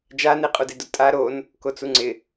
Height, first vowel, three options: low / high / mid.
low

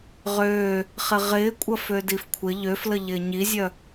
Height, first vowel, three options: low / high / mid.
mid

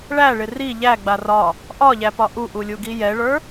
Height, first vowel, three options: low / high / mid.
low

